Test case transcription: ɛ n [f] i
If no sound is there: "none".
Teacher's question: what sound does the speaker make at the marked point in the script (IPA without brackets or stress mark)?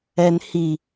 h